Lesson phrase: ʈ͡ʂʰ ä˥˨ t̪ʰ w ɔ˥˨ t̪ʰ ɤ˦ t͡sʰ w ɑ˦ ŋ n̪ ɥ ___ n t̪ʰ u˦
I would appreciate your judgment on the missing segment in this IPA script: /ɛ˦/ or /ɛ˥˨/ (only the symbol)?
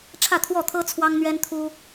ɛ˦